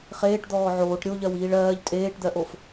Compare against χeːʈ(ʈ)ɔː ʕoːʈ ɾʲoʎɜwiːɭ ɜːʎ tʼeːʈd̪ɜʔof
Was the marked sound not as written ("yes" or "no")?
yes